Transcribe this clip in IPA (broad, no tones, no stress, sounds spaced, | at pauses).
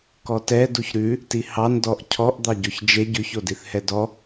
k ɔ t ɛ d u ç ɾ ʉ | t i h ɑ n d ɔ ʔ cʰ ɔ ʔ d̪ ɑ ɟ o ç d͡ʒ e ɟ ʉ ç o d i θ h ɛ d ɔ